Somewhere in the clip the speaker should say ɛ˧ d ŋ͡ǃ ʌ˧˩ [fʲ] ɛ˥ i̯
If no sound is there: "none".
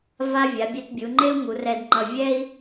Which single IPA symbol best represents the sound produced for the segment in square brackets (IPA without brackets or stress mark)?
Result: vʲ